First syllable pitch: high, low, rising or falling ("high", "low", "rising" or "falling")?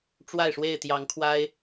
falling